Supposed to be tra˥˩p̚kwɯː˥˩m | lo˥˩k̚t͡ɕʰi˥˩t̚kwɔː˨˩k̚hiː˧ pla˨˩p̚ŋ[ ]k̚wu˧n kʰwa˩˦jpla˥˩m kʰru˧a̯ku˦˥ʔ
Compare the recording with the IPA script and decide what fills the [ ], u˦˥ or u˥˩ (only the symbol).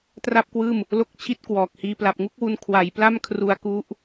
u˥˩